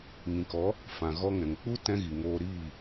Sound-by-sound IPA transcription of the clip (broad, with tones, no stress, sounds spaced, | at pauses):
ŋ ĩ˨ k ɔ˨˦ | f ã˨ ɣ ɔ˧ ŋ ɛ̃˨ ŋ k͡p u˦ t ɛ̃˦ ɣ i˨ ŋ oː˧ ɾ iː˦˨